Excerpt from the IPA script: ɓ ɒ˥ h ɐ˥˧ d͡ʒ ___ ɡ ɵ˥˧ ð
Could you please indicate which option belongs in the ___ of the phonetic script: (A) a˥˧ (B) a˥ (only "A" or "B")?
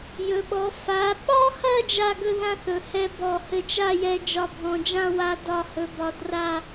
A